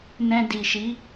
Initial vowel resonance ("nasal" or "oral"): nasal